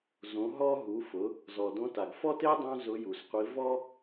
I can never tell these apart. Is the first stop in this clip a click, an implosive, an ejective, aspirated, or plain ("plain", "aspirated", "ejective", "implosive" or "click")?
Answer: plain